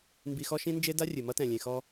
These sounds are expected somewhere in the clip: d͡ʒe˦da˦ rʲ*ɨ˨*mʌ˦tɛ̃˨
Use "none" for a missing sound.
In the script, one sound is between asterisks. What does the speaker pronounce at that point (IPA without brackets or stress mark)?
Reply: ɨ˨